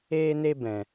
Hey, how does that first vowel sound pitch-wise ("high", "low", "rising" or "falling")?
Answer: high